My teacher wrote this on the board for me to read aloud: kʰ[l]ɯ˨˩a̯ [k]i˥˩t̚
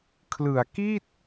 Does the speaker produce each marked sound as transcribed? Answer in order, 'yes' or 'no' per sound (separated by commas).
yes, yes